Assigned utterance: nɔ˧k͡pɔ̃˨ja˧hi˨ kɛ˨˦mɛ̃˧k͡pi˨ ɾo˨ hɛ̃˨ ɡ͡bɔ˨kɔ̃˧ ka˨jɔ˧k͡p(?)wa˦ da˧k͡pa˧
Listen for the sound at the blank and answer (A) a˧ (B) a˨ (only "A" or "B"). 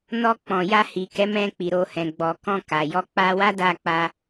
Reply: A